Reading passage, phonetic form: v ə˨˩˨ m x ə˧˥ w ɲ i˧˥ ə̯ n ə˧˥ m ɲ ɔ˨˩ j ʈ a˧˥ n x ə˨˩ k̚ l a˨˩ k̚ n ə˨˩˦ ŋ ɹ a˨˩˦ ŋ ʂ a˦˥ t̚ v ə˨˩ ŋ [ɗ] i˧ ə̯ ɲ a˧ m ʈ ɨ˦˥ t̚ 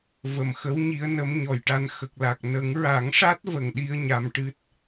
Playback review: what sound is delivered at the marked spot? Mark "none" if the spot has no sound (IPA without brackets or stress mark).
ɗ